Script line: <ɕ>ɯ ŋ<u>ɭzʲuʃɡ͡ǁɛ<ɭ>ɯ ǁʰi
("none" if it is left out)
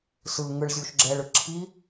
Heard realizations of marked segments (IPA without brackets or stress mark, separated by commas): s, ɯ, ɭ